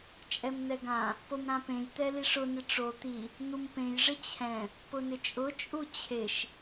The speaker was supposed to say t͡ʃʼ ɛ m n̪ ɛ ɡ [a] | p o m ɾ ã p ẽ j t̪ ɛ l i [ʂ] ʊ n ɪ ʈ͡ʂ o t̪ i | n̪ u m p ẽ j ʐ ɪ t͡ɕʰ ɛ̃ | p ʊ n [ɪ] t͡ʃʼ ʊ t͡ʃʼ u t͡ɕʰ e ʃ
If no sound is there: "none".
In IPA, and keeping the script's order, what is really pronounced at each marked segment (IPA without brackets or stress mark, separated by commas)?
ã, ʂ, ɪ